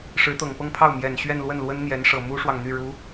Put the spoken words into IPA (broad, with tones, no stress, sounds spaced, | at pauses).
ʂ ɻ̩˧˥ t̪ ɤ˨˩ ŋ p ɤ˥˧ ŋ pʰ ɑ˥˩ ʊ̯ m j ɛ˨˩ n ɕ ɥ ɛ˥˧ n l w ə˥˩ n l w ə˥ n n̪ j ɛ˧˥ n ʂ ɤ˨˩ m u˥ ʂ w ɑ˨ ŋ n̪ y˥˩ ɻ u˧˥